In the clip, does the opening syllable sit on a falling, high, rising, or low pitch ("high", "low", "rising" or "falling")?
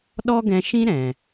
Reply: high